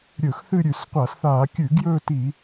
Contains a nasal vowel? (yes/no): no